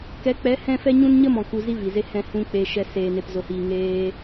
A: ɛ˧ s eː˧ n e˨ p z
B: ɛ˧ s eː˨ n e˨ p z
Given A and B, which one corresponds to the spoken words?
B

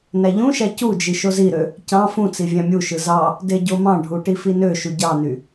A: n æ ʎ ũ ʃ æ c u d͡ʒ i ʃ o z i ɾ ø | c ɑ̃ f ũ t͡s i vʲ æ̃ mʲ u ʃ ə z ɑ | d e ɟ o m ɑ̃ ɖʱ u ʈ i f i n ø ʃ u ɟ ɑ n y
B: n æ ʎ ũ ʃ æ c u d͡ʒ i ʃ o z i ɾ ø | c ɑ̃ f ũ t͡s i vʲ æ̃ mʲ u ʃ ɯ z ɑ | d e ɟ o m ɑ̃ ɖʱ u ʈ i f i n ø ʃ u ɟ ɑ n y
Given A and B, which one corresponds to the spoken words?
B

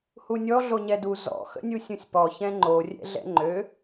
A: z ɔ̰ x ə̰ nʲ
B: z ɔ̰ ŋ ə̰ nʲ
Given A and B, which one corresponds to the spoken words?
A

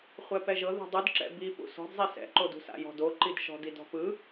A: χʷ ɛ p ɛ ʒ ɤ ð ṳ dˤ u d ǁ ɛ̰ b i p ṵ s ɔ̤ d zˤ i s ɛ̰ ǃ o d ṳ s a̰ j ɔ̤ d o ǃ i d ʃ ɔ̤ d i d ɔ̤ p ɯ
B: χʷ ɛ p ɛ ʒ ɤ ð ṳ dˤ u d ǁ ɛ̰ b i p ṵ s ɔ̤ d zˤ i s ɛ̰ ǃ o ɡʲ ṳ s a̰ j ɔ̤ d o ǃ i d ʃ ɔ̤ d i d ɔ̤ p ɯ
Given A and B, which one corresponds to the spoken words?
A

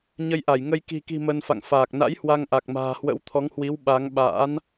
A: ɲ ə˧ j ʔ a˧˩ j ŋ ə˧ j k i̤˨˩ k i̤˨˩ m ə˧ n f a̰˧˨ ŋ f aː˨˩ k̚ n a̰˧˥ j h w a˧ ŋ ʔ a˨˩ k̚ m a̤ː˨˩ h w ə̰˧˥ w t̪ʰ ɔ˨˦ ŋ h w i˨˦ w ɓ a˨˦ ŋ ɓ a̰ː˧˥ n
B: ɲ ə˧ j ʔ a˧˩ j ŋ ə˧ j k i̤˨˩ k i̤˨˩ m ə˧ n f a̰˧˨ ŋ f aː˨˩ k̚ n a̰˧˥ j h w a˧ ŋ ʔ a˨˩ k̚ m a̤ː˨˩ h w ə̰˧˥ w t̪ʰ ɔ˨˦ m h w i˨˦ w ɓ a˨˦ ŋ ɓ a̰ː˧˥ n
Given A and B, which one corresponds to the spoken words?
A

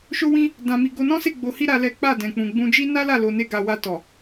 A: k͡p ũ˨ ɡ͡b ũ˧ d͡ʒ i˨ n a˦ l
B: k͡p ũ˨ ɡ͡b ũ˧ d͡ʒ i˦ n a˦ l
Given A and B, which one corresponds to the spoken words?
B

